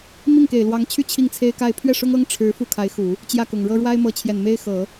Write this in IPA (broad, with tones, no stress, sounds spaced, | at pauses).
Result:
m i˥˩ ŋ k e˨˩ ɪ̯ l w ɑ˧˥ ŋ t͡ɕʰ y˥˧ t͡ɕʰ i˥˩ ŋ t͡sʰ e˥ ɪ̯ k a˥˧ ɪ̯ pʰ ɥ ɛ˥˩ ʂ ʊ˥ ŋ ɤ˥ ŋ ʈ͡ʂʰ ɻ̩˧˥ f u˥˩ kʰ a˧˥ ɪ̯ x u˨˩˦ | t͡ɕ j ä˥˩ k ʊ˨˩ ŋ ɻ ɤ˥ ɻ w a˥ ɪ̯ m ɤ˧˥ t͡ɕʰ j ɛ˨˩ n m e˥ ɪ̯ x ɤ˨˩˦